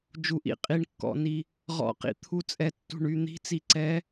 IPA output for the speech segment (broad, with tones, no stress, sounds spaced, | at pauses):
d͡ʒ u˨˩ ʔ ḭ˨˦ qʼ i˨˩ ɳ kː ɔ̰˨˩ n i˨˩ | ʁ ɔ̰˨˩ q ḭ˨˩ t̪ʰ u˨˦ t͡sʼ ɛ˨˩ tː ṳ˨˩ ɳ y˨˩ n̪ i̤˨˦ t͡s i˨˩ ǀ ɛ˨˦